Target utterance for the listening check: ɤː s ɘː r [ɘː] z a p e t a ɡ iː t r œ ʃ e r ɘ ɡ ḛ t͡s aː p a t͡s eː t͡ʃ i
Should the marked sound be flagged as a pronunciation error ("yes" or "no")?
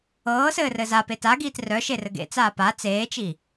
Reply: yes